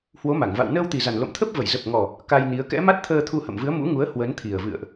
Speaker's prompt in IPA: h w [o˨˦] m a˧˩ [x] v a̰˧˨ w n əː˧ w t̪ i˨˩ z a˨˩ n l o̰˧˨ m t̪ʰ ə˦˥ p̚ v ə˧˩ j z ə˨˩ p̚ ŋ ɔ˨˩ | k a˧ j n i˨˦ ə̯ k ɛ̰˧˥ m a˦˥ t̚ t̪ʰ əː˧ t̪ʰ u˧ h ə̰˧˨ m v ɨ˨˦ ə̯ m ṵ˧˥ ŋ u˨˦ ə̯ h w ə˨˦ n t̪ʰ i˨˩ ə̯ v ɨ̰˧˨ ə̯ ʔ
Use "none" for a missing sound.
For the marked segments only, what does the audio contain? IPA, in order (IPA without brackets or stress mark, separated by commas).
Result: o˨˦, ŋ